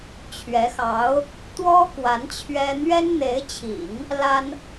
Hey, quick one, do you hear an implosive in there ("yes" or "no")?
no